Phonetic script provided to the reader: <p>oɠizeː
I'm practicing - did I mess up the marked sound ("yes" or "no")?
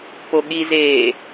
no